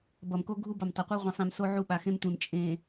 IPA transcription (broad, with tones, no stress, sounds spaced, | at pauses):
b ʌ˨ m k o˦ ɡʱ u˦ b ʌ˨ m tˤ ʌ˨ qʷ œ˦ ʁʷ ĩ˨ sˤ ĩ˨ m s o˦ ʕ u˦ ɓ a˨ x ẽ˦ m tʷ ẽ˨ m t͡ʃʼ ẽ˨